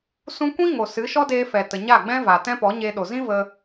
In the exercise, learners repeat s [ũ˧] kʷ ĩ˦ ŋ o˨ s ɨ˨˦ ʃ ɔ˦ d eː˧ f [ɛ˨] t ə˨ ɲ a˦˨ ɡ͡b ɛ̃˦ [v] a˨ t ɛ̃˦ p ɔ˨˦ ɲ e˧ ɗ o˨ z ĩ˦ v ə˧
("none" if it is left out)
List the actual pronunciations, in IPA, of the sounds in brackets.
ũ˧, ɛ˨, v

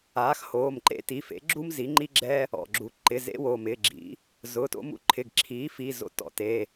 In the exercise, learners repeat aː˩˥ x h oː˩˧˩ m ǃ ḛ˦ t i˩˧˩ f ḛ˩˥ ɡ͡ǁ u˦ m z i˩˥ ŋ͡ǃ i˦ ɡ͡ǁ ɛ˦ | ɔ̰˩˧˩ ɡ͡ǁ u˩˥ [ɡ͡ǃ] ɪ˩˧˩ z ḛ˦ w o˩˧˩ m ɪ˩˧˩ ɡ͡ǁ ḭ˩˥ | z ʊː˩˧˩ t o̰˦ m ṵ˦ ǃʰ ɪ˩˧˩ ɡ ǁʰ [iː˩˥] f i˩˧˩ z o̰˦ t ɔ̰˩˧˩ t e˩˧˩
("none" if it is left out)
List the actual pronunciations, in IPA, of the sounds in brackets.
ǃ, iː˩˥

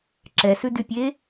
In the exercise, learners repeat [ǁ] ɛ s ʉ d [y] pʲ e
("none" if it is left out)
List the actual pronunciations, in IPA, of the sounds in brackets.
ǁ, y

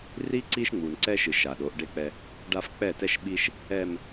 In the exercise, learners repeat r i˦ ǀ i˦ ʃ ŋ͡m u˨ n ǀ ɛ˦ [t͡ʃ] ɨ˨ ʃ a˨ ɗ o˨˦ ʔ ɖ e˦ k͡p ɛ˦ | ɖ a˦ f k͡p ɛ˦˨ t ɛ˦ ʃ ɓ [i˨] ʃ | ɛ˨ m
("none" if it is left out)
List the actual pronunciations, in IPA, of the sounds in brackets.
ʃ, i˦

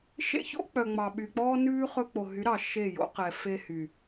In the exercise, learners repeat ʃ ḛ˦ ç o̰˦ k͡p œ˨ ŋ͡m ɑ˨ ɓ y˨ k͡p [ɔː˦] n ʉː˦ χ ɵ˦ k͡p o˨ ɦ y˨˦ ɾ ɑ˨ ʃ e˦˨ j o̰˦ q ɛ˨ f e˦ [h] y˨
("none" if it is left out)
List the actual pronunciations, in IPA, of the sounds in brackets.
ɔː˦, h

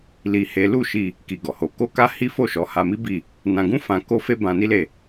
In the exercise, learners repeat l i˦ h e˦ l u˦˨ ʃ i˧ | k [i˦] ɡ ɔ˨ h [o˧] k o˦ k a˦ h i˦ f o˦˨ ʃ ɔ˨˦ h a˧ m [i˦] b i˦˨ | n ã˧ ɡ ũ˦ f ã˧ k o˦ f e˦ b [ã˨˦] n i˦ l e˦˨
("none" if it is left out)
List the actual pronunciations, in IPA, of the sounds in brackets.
i˧, o˧, i˦, ã˧

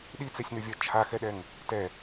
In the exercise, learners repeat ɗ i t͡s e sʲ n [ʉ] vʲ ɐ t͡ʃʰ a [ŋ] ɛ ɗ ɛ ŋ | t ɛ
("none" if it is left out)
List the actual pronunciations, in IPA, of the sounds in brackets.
ʉ, x

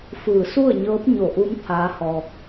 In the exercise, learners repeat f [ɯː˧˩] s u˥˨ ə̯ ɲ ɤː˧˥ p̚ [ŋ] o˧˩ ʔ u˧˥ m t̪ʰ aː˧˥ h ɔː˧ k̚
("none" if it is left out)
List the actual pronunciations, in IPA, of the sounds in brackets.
ɯː˧˩, ɲ

